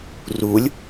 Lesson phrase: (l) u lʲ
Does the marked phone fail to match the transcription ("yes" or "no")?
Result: yes